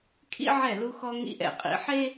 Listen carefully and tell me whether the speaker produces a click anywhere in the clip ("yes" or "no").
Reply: no